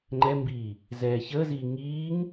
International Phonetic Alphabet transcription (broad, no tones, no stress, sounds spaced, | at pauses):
ŋ͡ǃ ɛ m b iː | z ɛː ç əː z iː ŋ iː ŋ